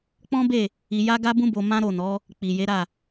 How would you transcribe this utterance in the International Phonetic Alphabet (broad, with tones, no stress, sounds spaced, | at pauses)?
k͡p ɔ̃˦ b e˦˨ | i˧ j a˦ ɡ a˦ b ũ˦ b o˧ m ã˦ ɾ o˦˨ n ɔ˨˦ | k͡p i˨ j e˨˦ ɾ a˦˨